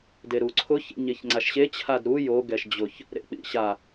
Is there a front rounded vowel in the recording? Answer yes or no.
no